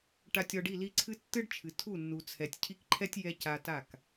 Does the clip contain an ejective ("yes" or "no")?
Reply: no